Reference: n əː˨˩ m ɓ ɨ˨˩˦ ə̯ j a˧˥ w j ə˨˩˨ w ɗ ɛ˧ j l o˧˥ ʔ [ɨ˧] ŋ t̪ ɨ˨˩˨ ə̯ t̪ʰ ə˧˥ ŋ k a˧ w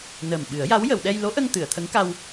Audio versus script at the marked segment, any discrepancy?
yes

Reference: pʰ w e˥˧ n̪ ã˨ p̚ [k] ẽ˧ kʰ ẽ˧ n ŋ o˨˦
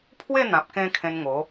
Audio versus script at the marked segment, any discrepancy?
no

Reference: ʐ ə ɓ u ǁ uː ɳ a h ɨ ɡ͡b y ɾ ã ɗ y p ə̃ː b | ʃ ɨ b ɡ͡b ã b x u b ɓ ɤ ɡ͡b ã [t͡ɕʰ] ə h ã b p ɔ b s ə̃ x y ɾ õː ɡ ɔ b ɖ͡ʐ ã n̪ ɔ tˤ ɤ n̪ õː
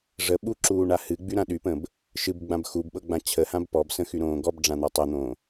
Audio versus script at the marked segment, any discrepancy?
no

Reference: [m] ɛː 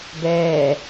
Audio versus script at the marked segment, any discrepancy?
yes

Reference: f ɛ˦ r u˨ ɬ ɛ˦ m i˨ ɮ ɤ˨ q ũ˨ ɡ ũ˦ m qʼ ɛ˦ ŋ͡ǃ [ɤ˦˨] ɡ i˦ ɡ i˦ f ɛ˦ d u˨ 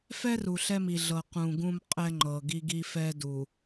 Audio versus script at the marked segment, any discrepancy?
yes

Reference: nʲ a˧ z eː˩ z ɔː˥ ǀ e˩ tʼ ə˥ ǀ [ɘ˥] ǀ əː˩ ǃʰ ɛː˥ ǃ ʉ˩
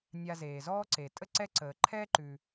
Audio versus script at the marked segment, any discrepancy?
yes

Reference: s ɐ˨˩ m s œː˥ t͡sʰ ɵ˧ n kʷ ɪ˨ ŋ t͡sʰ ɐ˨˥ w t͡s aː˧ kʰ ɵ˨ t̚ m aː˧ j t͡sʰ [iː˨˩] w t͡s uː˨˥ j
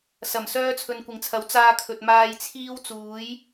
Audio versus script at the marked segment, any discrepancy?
yes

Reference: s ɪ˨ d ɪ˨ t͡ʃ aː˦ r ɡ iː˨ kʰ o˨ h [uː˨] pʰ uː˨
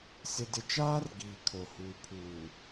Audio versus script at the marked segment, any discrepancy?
no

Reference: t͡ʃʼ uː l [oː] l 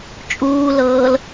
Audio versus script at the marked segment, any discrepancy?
yes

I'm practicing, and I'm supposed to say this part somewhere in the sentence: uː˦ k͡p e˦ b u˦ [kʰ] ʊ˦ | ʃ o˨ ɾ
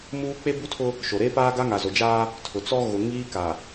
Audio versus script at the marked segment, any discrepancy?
yes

